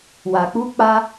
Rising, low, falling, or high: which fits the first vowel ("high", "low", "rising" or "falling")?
low